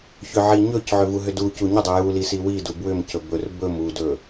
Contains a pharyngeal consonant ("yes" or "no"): yes